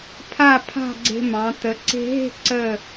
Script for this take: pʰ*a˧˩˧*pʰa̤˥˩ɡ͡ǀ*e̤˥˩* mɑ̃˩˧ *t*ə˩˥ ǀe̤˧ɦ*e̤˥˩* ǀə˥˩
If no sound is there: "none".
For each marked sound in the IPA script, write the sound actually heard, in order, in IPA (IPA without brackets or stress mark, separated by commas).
a˥˩, e̤˧, t, e̤˥˩